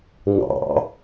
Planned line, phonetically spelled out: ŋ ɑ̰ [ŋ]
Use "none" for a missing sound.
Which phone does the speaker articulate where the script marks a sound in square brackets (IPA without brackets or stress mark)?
none